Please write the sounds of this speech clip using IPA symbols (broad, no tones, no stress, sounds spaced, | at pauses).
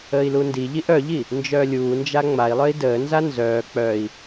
əː i̯ l u n d i ʎ i ʔ œ ʎ i | n d͡ʒ œː lʲ uː n d͡ʒ a ŋ͡m a i̯ lˠ œ i̯ d əː n z a n z œː k͡p œ i̯